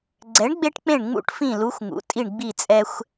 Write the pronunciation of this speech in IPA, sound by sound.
ɡ͡ǀ ɛ˨˥ ɳ ɡ͡b e˦ ʈ k͡p ẽ˦˨ ɳ ŋ͡m ṵ˦˨ ʈ f ĩ˦˨ l u˨˥ xʷ ŋ ṵ˩˧ tʼ i˦˨ ɳ ɡ͡b i˦˨ t͡sʼ ɛ˦ xʷ

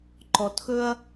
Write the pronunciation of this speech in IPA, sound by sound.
ǃ ɔ˨ t x ɵ˦ ɐ̯

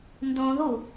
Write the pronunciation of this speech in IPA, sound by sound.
n d õ ð u

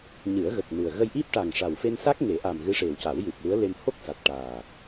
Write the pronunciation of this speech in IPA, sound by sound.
ɲ ɨ˨˩˦ ə̯ ɣ ə˨˩ k̚ n ɨ˨˩ ə̯ ɣ ə˧ j ʔ i˦˥ p̚ ʈ a˨˩ ŋ ʂ a˨˩ w f e˧ n s a˦˥ k̚ ŋ e˨˩˦ ʔ a˨˩ m ɣ ɨ˧˥ ʂ e˨˩ w c a˨˩˦ w j ɨ˨˩ p̚ l u˧˥ ə̯ l e˧ m h o˦˥ k̚ s a˨˩ t̚ ʈ aː˨˩

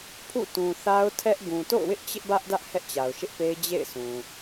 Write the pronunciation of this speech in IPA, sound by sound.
pʰ ṵ˦˨ t ũ˨ θ a˦ ʊ̯ tʰ ɛ˦ ʔ ɡ ũ˨ t o̰˦˨ ʊ̯ w ɪ˦ ʔ t͡ɕ ɪ˦ ʔ b ä˦ ʔ d ä˦ ʔ h ɛ˦ ʔ t͡ɕ a˨ ʊ̯ ʃ ɪ˦ ʔ p e˦ ɪ̯ d͡ʑ ḛ˦˨ ɪ̯ s ũ˨

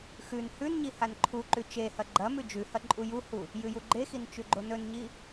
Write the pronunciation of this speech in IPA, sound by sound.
x ʉ n h ʉ n ɲ i h a n ǃʰ u ǃ ʉ t͡ʃ e h ɐ ɡ͡ǃ ɐ m ʉ d͡ʒ ʉ h ɐ ǃʼ u j u h u | j ɨ j u ɡ͡ǃ e x i n t͡ʃ ʉ ɡ͡ǃ o n ɵ n ɲ i

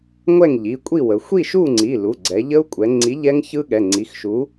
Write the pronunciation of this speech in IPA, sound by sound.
ŋʷ ɛ˥˨ ŋ ʎ i˩˧˩ kʷʼ i˥˨ w ə˩˧ xʷ i˥˨ ʃ u˥˨ ŋ͡ǀ i˩˧˩ l u˩˧˩ ɡ͡ǀ ɛ˩˧ ʎ ə˦˥ u̯ kʷʼ ɛ˩˧ ŋ͡ǀ i˨˥ ʎ ɛ˦˥ ŋ ç ɯ˦˥ ɠ ɛ˩˧˩ ŋ͡ǀ i˩˧˩ x ʃ u˨˥

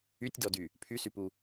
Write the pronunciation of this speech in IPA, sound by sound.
y tʲ d ɔ d y | pʰ y s y p u

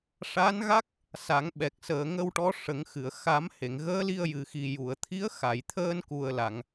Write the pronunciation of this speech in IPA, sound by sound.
ʂ a˧˥ n ɣ a˦˥ k̚ | s a˨˩˦ ŋ ɓ ɛ˨˩ k̚ s əː˨˩ ŋ ə˧ w ʈ ɔ˧˥ ʂ ə˨˩˦ ŋ x ɨ˨˩˨ ə̯ x a˨˩˦ m h e˨˩˨ ŋ ɣ əː˧˥ l i˧ ə̯ j ɨ˨˩ x i˨˩ j u˨˩˨ ə̯ t̪ʰ i˧˥ ə̯ x a˨˩˨ j t̪ʰ əː˧ n k u˨˩ ə̯ l a˨˩˨ ŋ

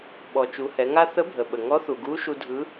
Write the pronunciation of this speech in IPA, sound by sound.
ɓ ɔ˩ t͡ʃ u˩˧ h ɛ˩˧ ŋ a˥ θ ə˧˥ bʱ ə˩ ɓ ə˩ ŋ ɔ˧˥ θ u˩ ɡ u˧˥ ʃ u˧ dʱ ɯ˧˥

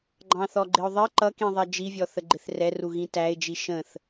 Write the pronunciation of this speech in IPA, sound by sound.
ɡ͡ǃ ɑ̃ θ ɔ ɡ͡ǃ ɪ ʊ̯ ðˤ ɪ ǃ ʌ k ĩ ðˤ ɛ d͡ʒ i vʲ ɔ θ ə ɡ͡ǃ ɪ θ r ɛ r u ɣ ĩ t æ ɪ̯ d͡ʒ i ʃ ə̃ θ

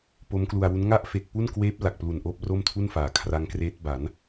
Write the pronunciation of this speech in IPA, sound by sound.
p o˦˥ m k l u˧ a̯ w u˦˥ n ŋ a˥˩ ʔ f e˨˩ k̚ p u˥˩ n k w eː˦˥ p̚ l a˨˩ k̚ p l u˨˩ n ʔ oː˥˩ p̚ r o˥˩ m tʰ u˥˩ n f aː˩˦ kʰ r a˦˥ ŋ k r eː˦˥ t̚ b a˩˦ n

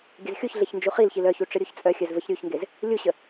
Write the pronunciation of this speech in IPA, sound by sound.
ɡʲ ə z xʲ u ç ɮ e ç n d͡ʒ u χ i l ç i l œ ç u ʈ͡ʂ ə ɾʲ u ç t͡sʼ œ xʲ œ z v ə ç ɾʲ u ç ŋ ɡ e z | lʲ u ɕ ə

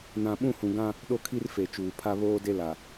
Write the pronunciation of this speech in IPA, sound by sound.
n ã˨ ɓ ũ˦˨ h ũ˨ ɡ ã˦ | ɗ o˦ kʰ i˦ r f e˨ t͡ʃ uː˨ pʰ a˦ β oː˦ d e˦ l a˨

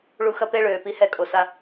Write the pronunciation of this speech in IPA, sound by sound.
ɭ u˧ x ɐ˦ p e˦ ɭ øː˨ p i˧ h ɛ˧ kʼ o˨ s a˧

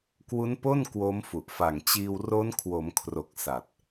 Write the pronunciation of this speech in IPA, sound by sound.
k w u˦˥ n p o˥˩ n k w oː˦˥ m f u˨˩ ʔ f a˨˩ ŋ t͡ɕ iː˧ w r o˦˥ n kʰ w o˩˦ m kʰ r o˨˩ k̚ s a˨˩ t̚

